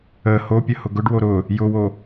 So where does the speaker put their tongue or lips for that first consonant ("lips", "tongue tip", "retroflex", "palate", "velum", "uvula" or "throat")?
throat